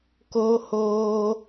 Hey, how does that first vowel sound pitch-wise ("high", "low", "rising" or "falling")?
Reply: high